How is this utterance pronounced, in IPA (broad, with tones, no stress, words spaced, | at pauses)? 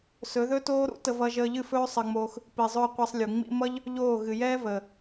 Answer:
sɵ˨˦ðɵ˦toː˦ ɾṵ˦ tə˧v ʌ˧ʒəː˧ʎɨ˦˨fɵː˦ sˤəː˧ŋ͡moː˧x | pi˨zˤɵː˧ qʷe˧sˤlʲu˨ŋ͡mḭ˦ mʌ˦ʎ | ʎoː˦˨ ɣɨ˨jɛː˦vəː˨